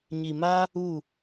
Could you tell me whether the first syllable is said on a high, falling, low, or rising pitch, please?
low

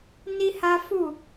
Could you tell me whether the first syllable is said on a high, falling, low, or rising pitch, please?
high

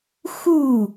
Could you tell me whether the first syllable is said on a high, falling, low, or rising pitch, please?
falling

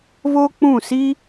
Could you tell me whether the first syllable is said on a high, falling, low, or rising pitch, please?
high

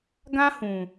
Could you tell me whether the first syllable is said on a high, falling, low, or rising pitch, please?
high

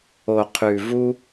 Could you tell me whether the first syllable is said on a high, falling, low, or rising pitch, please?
low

